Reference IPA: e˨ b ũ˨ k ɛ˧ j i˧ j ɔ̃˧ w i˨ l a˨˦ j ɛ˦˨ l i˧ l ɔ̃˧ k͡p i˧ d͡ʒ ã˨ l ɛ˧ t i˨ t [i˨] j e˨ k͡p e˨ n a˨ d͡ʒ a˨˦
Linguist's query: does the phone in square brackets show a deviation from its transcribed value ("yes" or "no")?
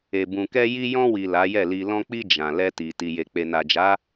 no